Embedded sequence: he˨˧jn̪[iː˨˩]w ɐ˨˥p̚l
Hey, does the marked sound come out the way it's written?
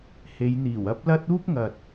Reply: yes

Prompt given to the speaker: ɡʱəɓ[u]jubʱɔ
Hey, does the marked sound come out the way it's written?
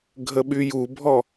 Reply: no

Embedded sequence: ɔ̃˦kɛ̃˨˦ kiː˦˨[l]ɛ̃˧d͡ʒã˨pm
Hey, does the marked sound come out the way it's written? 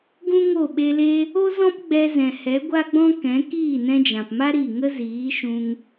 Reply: no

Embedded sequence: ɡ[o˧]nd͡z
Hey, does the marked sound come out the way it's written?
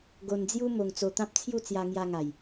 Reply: yes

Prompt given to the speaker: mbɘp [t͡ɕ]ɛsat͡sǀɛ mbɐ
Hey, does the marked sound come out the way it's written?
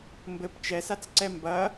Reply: no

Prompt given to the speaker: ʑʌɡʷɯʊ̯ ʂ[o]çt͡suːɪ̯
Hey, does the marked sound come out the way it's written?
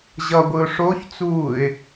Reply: yes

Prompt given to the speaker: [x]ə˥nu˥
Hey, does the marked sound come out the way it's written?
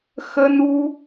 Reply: yes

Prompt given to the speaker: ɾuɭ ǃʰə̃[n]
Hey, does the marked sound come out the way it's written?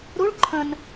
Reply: yes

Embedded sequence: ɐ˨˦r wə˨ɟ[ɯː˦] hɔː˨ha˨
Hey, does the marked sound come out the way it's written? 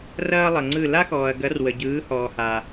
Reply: no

